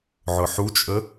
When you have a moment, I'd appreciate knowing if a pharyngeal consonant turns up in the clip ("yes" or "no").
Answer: yes